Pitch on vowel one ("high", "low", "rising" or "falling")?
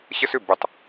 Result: high